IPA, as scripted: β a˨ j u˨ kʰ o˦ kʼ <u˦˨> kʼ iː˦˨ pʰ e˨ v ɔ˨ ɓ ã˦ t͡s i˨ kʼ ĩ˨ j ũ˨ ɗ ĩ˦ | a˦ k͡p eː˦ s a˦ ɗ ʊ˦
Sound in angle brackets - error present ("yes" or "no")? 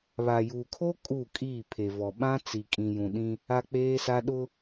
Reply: no